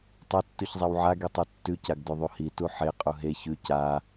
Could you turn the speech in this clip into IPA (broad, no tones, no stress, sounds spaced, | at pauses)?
tˤ ɐ tː ʉ ç zˤ e w ʕ a ɡ i tˤ ʉ tː ʉ c a ɡ d ʉ ðˤ u h i t u ħ e qʼ u ɦ e ç ʉ c a